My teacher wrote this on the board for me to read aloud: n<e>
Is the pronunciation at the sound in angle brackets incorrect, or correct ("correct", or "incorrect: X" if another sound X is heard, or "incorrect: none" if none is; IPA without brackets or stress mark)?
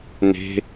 incorrect: e̤